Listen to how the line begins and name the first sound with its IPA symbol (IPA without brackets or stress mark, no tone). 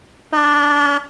p